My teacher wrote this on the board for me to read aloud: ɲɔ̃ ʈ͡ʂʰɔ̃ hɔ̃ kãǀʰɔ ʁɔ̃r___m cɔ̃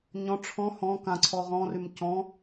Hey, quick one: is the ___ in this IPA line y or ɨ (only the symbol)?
y